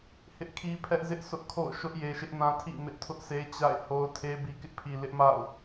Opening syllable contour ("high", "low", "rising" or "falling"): high